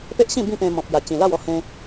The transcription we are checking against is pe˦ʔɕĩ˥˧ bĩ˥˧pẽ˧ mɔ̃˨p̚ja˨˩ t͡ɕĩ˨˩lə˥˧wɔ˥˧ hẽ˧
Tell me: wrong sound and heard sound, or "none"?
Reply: ə˥˧ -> a˥˧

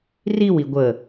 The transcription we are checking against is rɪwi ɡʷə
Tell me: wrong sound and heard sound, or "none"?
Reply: ɪ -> i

